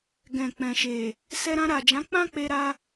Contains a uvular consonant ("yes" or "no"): no